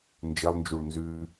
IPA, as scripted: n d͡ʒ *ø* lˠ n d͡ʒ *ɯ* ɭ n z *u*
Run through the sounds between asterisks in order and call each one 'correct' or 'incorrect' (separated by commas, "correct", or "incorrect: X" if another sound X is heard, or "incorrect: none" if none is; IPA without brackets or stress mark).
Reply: incorrect: ɘ, incorrect: u, incorrect: ʉ